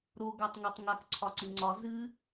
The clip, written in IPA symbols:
ɾ o ɡ a tˤ ŋ ɛ tˤ ŋ a k ǀʰ ɒ ǀ ɨ ŋ͡ǀ ɒ z ɨ

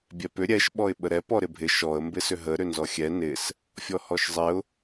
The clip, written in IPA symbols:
bʲ ɛ p ʏ ɾʲ ɛ ʃ ɓ ɔ ɪ̯ ɓ ə ɾ ɛ p ɔ ɾ ɪ bʱ ɪ ʃ ɔ ə̯ m b ɪ s ʏ ɦ ə ɾ ʏ n z ɔ xʲ ɛ n ɪ s | fʲ ɔ h ɔ ʃ zˤ ɪ ʊ̯

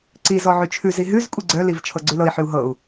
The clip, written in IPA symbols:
ǀ i z ɔ ʕ ʉ t͡ʃʰ ʉ z i ɦ ʉ z kʷʼ i ɡ͡ǀ œ l i v t͡ʃʰ ɤ ɡ͡ǀ ʉ l ɤ i̯ ħ ʉ u̯ ɦ ɤ u̯

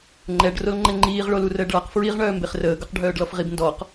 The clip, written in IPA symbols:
ŋ͡ǃ ɛ ɖ r o l ŋ͡ǃ ɛ ŋ͡ǃ iː ʁ ɭ o l u r əː ɖ ɭ a q f ɹ i ʁ ɳ œː m b e χ r əː ɡ œ q ɖʱ œː ɖ l ɔ f ʁ i b n d ɔ q

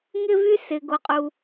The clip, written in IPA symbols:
ŋ ɪ˦ v y˦ s ɪ˨ ɡ o˨ qʼ u˨

